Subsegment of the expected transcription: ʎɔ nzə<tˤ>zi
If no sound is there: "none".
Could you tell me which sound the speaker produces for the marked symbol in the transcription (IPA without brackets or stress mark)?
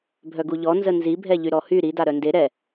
n